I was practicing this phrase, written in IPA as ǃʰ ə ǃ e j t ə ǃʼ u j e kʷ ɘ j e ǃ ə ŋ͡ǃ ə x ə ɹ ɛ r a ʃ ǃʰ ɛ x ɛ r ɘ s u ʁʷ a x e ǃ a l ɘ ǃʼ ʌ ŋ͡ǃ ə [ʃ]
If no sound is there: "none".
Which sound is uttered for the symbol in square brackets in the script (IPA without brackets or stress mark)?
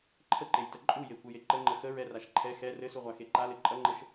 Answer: ʃ